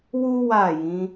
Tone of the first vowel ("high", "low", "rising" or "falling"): high